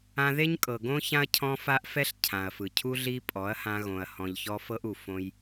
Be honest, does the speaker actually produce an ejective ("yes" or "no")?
yes